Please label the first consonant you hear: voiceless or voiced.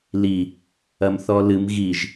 voiced